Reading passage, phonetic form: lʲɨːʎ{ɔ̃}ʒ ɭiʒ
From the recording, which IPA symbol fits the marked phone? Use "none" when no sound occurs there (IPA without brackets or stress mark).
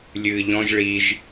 ɔ̃